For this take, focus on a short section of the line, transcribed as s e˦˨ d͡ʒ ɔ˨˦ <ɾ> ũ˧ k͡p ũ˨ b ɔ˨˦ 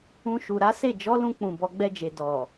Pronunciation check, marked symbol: incorrect: l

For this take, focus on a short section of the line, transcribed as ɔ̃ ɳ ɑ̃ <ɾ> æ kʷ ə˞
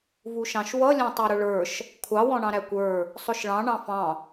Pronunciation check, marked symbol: correct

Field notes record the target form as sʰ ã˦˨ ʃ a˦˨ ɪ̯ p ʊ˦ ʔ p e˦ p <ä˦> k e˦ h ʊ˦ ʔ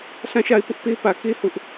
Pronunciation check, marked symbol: incorrect: ä˨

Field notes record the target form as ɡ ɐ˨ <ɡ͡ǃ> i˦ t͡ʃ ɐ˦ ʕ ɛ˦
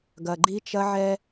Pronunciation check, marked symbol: correct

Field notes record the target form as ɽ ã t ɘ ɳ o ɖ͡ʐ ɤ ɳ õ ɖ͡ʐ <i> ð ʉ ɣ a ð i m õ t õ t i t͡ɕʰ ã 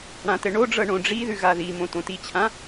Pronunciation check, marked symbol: correct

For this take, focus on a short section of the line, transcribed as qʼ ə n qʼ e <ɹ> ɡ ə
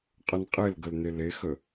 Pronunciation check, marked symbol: incorrect: l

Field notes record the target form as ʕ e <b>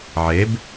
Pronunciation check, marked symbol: correct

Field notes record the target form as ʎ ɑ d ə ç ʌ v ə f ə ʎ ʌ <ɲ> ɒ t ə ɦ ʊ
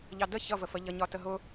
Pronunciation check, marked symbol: correct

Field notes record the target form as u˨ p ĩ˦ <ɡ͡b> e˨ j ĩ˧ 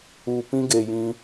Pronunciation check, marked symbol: incorrect: ɡ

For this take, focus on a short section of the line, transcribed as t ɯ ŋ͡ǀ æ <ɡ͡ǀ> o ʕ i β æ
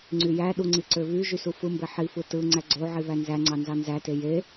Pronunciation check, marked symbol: correct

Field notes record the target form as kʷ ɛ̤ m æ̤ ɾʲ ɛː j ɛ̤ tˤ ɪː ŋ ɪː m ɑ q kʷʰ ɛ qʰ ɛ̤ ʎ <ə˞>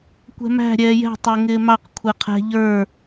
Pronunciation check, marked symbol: correct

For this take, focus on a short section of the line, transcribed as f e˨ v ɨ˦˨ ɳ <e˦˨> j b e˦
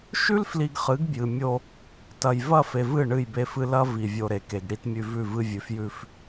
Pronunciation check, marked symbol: incorrect: ɨ˦˨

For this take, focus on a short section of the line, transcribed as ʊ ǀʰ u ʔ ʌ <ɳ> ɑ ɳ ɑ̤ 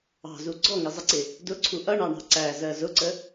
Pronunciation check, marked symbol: correct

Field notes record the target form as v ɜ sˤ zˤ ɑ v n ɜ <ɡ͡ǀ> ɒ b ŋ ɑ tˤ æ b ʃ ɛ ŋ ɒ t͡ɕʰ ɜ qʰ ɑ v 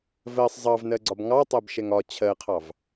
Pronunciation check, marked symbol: correct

